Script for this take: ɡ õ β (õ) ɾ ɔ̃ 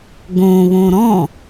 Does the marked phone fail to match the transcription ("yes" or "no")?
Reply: no